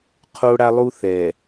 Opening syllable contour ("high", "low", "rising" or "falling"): high